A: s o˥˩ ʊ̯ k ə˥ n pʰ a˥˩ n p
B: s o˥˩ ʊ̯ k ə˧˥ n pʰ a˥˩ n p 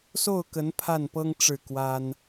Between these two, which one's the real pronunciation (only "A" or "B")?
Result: B